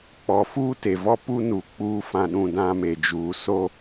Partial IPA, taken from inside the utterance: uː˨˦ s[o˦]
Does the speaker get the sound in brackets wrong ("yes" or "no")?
no